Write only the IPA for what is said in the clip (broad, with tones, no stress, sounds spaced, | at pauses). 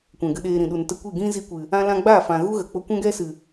kʷ ɛ̃˨ ɡ ɨ˧ ɗ eː˧ ɾ ĩ˨ ɗ u˨ n t ə˧ kʷ i˦˨ ɡ ĩ˦ z i˧ kʷ ɨ˨ | ã˦ l ã˦ ɡ͡b aː˦˨ f ã˨ ɣ u˦ ɣ ə˨ k͡p o˧ kʷ ɛ̃˦ ɡ ɛ˦ s ɨ˨